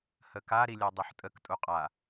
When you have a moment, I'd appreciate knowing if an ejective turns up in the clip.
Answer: yes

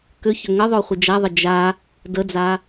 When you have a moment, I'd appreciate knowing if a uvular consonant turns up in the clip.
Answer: yes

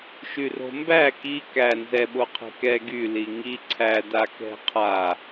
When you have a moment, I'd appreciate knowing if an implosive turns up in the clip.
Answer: yes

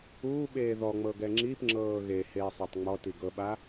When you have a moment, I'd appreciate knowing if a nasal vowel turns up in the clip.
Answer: no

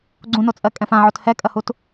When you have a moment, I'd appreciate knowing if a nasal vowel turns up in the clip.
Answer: yes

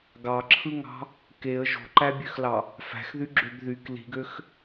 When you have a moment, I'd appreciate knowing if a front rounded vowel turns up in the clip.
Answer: yes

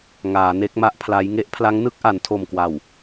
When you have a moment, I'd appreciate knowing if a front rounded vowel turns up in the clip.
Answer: no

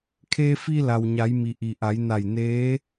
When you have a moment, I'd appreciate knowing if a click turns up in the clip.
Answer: no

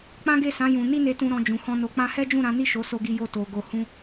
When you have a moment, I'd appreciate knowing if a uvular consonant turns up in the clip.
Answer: no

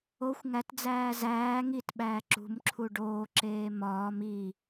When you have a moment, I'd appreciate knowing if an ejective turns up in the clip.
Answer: no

